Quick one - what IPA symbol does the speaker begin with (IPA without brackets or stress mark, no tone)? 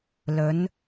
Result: l